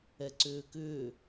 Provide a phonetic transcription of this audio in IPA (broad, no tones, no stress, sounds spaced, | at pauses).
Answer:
ɛ ǀ ʏː k ʏː